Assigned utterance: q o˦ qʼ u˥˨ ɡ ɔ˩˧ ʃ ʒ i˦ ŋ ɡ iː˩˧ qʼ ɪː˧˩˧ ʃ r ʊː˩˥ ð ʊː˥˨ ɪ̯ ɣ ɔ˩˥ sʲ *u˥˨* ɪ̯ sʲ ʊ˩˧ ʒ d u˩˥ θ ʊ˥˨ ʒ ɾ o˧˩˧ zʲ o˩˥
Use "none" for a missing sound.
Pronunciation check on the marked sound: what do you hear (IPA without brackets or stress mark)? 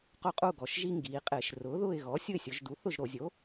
ʊ˥˨